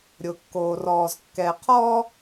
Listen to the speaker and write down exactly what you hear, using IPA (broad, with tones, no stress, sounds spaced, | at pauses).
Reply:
ɾʲ ʊ˨ kː oː˨ r ɔː˨ z kː ɛ˨ qʰ ɔː˦